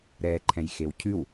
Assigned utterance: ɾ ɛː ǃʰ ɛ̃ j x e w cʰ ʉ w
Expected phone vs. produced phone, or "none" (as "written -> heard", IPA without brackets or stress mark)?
none